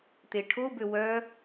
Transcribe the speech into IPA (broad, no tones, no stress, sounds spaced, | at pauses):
t̪ e ʈʰ o b ø w œ